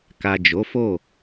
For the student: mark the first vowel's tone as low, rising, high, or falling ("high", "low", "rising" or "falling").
low